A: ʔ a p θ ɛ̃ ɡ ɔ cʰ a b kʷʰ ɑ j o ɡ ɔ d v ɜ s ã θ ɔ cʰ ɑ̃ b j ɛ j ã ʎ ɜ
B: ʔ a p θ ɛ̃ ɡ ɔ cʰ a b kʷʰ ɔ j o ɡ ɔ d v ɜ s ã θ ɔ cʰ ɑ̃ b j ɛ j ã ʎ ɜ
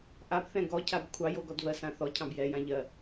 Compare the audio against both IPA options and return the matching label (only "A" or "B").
A